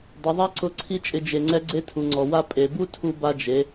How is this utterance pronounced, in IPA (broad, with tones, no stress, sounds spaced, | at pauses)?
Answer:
dˤ ʊ˩˧ ðˤ a˥ ǀ ʊ˧˥ ǀʰ i˥ t͡ʃʼ ɪ˧ d͡ʒ e˩˧ ŋ͡ǀ ɛ˧˥ ɡ͡ǀ e˧ tʰ u˩ ŋ͡ǀ ɔ˩ w a˧ pʼ e˩˧ b u˥ tʰ u˧ b a˧ d͡ʒ e˩˧